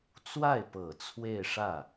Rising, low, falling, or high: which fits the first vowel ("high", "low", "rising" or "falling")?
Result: falling